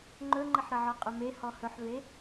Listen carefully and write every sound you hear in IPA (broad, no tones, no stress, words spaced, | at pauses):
ŋ͡ǃɵŋ͡ǃəħɾəʕɔ qʼɵmehɔ hɵħve